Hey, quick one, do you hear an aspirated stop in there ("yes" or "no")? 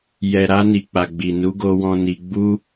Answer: no